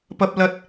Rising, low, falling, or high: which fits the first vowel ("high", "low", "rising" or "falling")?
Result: high